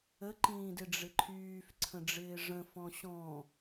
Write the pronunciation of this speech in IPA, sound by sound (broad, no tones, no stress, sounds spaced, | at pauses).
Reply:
ə ǃ ĩː d ɪ ɖ͡ʐ ɪ ǃʰ yː f ǀʰ ə̃ ɖ͡ʐ ɪː ʐ ə̃ f ɔ̃ ɕ ɔ̃